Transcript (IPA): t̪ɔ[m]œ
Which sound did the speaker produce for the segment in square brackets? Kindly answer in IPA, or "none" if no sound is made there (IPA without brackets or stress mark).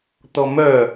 m